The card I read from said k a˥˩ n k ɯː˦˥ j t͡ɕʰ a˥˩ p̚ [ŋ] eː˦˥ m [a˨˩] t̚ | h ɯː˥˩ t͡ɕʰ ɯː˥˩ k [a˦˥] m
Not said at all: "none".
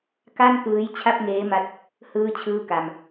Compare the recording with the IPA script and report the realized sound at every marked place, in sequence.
ŋ, a˦˥, a˧

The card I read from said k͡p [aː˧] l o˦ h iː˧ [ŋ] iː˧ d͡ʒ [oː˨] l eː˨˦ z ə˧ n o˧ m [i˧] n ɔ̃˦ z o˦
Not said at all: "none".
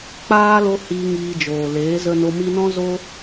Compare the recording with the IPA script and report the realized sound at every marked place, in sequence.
aː˧, ŋ, oː˨, i˧

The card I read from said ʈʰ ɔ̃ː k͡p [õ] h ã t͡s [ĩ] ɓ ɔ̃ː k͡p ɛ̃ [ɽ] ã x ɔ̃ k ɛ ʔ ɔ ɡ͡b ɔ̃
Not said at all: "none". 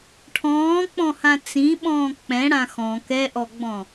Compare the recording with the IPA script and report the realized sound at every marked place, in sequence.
ɔ̃, ĩ, ɽ

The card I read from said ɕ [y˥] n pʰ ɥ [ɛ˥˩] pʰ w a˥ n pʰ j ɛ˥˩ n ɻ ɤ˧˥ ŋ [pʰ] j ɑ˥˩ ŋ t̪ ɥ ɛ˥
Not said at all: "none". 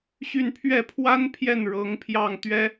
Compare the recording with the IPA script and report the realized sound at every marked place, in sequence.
y˥˧, ɛ˥˩, pʰ

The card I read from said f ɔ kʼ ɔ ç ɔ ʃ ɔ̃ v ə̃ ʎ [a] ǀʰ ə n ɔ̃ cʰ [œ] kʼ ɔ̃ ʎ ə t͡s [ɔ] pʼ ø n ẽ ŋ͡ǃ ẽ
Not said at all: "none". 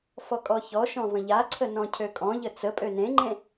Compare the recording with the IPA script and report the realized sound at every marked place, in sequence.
a, ø, ə

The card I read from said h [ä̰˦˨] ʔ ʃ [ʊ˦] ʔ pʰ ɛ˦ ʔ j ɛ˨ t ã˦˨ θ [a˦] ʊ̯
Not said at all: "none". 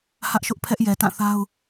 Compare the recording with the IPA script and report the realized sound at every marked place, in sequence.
ä˦, ʊ˦, a˦

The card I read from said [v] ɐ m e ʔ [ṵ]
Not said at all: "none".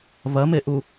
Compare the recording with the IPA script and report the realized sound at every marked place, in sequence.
v, u

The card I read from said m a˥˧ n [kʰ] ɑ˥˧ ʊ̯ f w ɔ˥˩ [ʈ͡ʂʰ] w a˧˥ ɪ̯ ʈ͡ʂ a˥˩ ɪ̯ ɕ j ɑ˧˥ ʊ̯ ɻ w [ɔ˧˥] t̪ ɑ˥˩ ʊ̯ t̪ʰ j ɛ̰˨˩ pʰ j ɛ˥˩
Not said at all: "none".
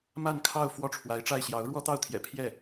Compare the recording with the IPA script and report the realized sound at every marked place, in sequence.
kʰ, ʈ͡ʂʰ, ɔ˥

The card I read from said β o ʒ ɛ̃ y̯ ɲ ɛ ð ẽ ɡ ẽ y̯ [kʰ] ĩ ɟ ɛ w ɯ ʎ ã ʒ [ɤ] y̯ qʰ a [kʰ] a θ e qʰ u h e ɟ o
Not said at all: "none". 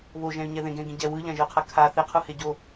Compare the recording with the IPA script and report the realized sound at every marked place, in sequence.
ɡ, ɯ, kʰ

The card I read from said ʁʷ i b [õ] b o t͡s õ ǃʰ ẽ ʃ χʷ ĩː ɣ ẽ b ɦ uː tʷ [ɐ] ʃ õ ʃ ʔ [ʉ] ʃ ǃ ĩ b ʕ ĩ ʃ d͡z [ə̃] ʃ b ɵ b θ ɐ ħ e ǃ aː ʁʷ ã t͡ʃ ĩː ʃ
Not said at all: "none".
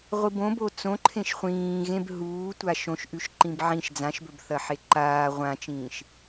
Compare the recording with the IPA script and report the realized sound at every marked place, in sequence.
õ, a, ʉ, ã

